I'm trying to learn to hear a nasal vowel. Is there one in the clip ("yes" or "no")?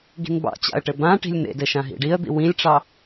yes